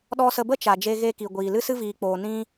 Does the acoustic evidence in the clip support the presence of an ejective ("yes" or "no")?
no